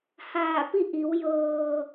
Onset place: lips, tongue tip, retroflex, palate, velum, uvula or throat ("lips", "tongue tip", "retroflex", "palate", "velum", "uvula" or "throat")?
throat